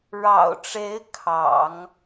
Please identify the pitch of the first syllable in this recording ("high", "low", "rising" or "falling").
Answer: low